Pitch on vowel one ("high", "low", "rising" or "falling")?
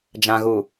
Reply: low